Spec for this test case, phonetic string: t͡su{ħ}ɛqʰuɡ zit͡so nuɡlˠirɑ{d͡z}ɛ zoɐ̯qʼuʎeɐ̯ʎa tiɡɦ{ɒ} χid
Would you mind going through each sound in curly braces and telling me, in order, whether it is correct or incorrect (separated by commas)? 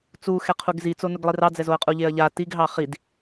incorrect, correct, incorrect